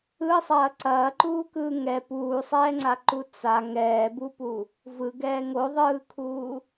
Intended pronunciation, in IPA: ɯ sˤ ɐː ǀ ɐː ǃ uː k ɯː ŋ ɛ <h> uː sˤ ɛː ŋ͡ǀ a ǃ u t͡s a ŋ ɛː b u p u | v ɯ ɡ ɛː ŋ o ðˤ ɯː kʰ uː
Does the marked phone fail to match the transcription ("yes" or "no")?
yes